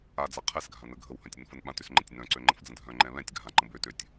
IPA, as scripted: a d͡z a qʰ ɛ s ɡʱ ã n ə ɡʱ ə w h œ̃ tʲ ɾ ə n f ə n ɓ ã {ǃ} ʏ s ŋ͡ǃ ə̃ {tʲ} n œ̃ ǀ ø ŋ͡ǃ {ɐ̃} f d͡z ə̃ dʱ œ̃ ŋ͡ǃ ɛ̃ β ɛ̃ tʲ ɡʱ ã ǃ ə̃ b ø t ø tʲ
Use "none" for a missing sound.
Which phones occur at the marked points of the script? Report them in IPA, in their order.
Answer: t, tʲ, ə̃

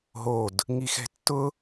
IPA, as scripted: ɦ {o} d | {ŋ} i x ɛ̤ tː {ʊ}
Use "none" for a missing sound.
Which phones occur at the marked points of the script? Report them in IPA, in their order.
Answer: o, ŋ, ʊ

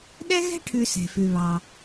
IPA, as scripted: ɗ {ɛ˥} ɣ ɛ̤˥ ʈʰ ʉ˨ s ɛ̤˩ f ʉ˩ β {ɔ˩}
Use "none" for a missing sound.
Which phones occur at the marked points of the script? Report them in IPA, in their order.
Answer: ɛ˥, ɑ˩

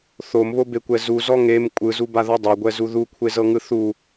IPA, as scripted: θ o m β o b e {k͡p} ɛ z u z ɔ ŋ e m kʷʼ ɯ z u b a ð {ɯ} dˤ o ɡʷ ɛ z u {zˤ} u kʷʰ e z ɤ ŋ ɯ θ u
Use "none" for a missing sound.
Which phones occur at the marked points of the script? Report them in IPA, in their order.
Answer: kʷ, ɤ, ð

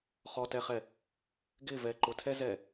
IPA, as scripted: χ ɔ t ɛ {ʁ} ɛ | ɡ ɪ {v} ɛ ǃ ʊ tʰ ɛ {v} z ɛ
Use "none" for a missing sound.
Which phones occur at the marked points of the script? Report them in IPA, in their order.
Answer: χ, v, none

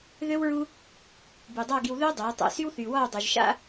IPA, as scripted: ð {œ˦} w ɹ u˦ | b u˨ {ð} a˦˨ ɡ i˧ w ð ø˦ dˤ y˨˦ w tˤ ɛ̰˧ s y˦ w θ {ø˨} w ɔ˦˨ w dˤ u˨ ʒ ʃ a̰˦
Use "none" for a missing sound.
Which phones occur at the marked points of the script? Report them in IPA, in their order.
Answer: ø˦, dˤ, y˨

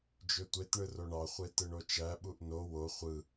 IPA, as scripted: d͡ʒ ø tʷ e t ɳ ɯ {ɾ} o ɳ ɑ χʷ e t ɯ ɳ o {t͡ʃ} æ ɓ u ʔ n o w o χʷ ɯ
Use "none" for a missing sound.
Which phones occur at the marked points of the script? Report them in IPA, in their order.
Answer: r, t͡ʃ

